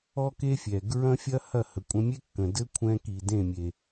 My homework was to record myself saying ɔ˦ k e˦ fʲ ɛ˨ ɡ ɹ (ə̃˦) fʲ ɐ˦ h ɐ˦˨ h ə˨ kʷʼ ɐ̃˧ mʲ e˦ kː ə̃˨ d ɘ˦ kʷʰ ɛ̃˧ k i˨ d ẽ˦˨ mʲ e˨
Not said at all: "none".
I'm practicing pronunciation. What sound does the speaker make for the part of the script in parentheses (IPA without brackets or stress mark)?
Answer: ɐ̃˦